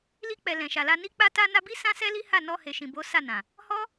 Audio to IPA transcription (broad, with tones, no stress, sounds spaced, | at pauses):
l i˧ k͡p ɛ˨ l ɛ̃˨ ʃ a˨ l a˧ n i˧ k͡p a˧ t a˧ n a˧ b i˦ s ã˦ s ɛ˦ l i˦ h a˦˨ n ɔ˧ h e˨ ʃ ĩ˨ b o˨˦ s a˦˨ n ã˨ | h ɔ˦